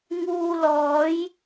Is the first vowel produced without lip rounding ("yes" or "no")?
no